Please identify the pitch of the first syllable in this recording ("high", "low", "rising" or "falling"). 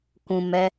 low